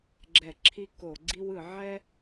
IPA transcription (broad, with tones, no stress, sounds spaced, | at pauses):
ɡ͡ǁ ɛ˧˩˧ ǁʰ i˥ k o˧˩˧ ɡ͡ǀ i˥ w ɯ˧˩˧ ʕ ɛ˥